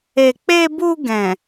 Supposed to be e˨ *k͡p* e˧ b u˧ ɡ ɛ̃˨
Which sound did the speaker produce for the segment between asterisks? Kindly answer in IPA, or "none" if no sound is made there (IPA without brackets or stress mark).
k͡p